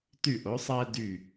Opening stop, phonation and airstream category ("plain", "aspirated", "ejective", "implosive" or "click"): plain